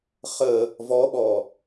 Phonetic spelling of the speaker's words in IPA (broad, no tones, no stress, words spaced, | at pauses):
χə | vɔɓɔ